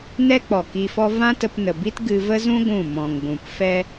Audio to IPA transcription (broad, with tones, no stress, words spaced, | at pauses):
nɛ˦k͡pɔ˨ ki˧fɔ˦ vã˦tə˧pnə˨bi˦t ɡɨ˧və˦zũ˦ ɡʷũ˦˨ mɔ̃˨ŋ ɡʷũ˨pfɛ˦